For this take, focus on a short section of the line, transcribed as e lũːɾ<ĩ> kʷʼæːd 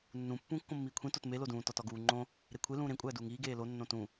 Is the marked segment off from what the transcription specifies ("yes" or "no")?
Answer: yes